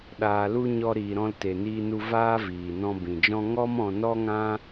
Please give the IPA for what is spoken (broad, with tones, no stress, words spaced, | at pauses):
ɗaː˨lu˧ ɲɔ˧ɾiː˨ɾɔ̃˧l te˨niː˧nu˧ vaː˦viː˨ nɔ̃˧bĩ˨d͡ʒɔ̃˦ ŋɔ˦mɔ̃˧nɔ˦ŋã˦